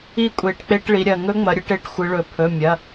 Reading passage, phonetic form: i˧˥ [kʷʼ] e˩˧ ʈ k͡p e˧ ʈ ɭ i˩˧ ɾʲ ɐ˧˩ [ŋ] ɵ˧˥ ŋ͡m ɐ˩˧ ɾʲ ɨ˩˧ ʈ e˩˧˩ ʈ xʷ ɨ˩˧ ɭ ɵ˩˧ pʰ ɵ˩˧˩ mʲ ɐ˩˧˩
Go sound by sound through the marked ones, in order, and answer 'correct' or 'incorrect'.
correct, correct

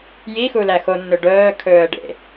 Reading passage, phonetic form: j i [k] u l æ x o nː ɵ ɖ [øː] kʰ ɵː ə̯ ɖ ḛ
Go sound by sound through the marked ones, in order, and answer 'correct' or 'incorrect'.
incorrect: x, incorrect: œː

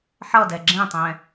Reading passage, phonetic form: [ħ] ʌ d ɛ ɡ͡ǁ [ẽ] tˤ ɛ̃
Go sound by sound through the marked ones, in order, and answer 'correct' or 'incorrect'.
correct, correct

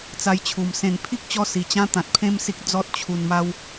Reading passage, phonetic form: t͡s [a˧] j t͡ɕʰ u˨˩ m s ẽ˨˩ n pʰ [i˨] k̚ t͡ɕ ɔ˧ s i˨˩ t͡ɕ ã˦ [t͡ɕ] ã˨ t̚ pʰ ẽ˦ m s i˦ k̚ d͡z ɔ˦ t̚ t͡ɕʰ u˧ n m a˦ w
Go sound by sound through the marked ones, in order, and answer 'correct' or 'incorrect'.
correct, incorrect: i˦, incorrect: t̪

